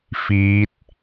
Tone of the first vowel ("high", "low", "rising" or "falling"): rising